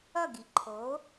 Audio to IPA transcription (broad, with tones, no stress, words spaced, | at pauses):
ʌ˥˩ɡi˩ǃʰo˩˥